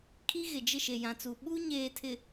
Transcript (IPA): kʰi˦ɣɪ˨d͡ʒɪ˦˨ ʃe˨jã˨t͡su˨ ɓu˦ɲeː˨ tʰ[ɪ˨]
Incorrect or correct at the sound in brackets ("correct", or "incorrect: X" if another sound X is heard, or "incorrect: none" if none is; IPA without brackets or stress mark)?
correct